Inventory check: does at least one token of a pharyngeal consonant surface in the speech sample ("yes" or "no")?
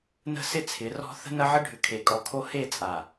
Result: yes